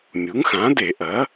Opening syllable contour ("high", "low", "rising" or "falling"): rising